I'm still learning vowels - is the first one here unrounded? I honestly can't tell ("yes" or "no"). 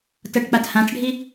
yes